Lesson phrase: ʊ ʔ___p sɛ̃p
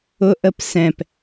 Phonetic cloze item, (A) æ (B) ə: B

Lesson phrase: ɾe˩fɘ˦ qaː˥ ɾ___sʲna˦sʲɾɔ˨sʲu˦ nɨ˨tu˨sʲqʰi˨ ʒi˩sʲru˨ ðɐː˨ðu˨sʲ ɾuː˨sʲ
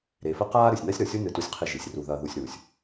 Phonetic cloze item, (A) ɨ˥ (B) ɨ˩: B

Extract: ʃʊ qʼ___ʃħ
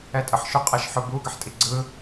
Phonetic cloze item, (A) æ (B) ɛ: B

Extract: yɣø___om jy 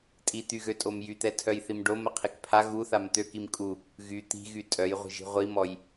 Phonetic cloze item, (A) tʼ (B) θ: A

